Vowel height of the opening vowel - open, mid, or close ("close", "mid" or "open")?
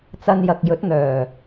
open